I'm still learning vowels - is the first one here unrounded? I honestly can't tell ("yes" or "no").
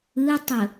yes